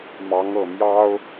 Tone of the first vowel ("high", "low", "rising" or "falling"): rising